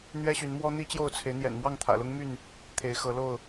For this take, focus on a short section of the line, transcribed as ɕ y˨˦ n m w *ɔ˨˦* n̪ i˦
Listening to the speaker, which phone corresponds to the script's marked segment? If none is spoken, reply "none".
ɔ˦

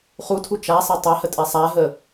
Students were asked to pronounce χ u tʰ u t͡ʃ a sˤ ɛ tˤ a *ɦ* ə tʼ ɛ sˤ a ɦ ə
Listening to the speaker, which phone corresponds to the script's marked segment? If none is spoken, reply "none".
h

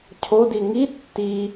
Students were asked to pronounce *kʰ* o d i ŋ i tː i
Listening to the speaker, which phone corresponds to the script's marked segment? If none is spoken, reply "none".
cʰ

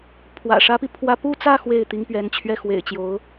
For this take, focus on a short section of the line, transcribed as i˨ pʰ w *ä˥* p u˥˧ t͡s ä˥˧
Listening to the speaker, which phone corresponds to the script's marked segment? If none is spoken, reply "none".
ä˥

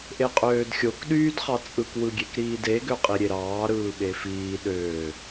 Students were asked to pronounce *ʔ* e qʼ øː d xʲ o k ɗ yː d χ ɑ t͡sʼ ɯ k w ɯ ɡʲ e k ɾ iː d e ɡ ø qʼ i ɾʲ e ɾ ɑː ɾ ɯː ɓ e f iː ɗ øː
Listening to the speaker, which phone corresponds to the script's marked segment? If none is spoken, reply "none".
ʔ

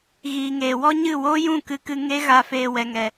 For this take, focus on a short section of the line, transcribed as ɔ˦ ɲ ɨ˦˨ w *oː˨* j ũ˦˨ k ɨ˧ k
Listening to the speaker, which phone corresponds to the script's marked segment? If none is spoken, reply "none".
oː˦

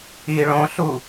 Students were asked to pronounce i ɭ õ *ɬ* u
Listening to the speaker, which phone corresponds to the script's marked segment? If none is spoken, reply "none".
ɬ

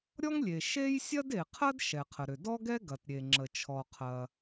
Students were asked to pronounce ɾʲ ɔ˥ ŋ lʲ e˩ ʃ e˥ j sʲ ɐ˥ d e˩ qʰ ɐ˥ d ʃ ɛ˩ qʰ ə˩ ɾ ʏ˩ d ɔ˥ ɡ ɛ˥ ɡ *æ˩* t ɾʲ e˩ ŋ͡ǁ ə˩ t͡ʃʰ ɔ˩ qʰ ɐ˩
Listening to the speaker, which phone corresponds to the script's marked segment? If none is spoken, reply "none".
ɐ˩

